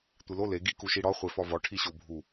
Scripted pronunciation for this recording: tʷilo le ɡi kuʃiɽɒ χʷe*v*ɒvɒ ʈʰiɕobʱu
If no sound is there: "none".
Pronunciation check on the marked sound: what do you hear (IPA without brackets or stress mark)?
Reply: f